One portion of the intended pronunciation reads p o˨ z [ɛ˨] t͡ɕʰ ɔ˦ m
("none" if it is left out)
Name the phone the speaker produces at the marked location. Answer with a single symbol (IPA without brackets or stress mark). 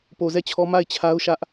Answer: ɛ˦˨